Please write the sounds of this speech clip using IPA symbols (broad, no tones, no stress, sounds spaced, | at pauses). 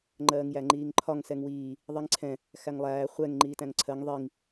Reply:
ŋ͡ǃ ɜː ŋ j æ ŋ͡ǃ iː ŋ ǃʰ ɒ ŋ s ɛ ŋ w iː | ðˤ i ŋ ǀʰ ɛ̃ | x æ ŋ lˠ æː χʷ ɛ ŋ ŋ͡ǃ iː t æ̃ ŋ ǀʰ ɜ ŋ ðˤ i ŋ